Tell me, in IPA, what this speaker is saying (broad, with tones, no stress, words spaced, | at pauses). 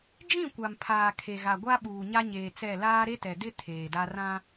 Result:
d͡ʒĩ˦˨kʷa˨mpʰaː˨ kʰe˨ɣa˨ɡʷa˦ɓuː˨ ɲa˦ɲeː˨t͡sɛ˦˨ laː˦ɾe˦tɛ˨dɪ˦ tʰeː˨da˦ rã˦